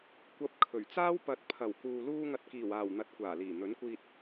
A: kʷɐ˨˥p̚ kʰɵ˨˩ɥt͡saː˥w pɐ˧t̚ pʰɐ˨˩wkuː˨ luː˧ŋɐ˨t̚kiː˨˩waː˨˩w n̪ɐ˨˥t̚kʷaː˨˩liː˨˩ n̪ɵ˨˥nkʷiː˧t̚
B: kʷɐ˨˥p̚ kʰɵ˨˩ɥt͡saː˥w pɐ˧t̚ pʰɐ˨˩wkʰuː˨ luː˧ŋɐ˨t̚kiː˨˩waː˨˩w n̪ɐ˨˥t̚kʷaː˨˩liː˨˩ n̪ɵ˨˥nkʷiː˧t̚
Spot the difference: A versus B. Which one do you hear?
A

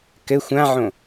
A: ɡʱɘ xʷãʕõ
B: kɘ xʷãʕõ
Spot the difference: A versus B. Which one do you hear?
B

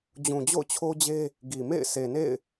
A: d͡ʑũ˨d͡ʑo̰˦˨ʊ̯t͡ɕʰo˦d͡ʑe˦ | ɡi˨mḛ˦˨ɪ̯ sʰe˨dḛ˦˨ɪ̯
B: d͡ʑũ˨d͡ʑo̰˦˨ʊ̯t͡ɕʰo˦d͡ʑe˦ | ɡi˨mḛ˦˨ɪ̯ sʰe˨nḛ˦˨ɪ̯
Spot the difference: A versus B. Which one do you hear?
B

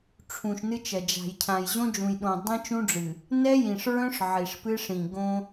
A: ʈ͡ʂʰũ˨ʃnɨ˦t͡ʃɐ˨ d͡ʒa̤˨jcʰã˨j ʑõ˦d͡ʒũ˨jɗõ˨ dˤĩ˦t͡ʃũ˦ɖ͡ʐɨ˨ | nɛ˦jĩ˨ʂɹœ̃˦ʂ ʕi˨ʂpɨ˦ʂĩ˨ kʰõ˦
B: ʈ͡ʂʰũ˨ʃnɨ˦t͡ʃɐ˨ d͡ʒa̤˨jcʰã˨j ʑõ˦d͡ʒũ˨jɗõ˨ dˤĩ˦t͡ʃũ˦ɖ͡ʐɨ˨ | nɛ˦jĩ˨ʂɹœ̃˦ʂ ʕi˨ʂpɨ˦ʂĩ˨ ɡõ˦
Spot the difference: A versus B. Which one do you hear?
B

